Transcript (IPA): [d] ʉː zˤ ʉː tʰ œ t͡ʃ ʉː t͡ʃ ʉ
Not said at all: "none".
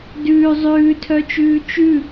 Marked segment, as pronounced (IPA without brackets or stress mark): d